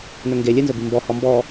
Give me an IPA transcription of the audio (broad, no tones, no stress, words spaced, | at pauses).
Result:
nɵŋɡe lʲɨnzɵbi mbɔ hɔmbɔ